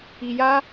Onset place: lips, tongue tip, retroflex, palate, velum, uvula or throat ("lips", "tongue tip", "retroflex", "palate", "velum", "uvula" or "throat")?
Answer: palate